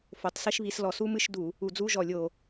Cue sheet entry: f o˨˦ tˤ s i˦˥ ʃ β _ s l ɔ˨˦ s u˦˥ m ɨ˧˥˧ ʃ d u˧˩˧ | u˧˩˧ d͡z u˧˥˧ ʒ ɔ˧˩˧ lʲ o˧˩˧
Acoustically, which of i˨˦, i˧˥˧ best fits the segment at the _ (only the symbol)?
i˨˦